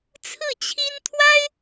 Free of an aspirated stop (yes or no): no